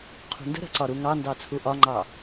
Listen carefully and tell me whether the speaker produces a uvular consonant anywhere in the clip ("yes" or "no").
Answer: yes